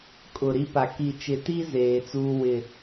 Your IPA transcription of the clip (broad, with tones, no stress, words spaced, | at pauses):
kʼʊ˨ ɾi˦pa˨ ki˨t͡ʃɪ˨ti˦ zeː˨t͡suː˦wɪ˦˨